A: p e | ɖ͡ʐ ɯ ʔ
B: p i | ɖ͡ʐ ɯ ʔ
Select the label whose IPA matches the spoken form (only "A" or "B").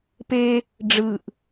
A